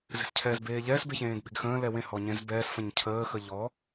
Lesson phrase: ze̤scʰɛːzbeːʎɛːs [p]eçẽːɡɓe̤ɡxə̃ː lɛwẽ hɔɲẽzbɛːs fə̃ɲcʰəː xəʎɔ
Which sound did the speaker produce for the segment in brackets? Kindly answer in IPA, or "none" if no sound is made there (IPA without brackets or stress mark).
b